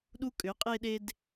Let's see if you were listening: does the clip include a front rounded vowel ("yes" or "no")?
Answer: yes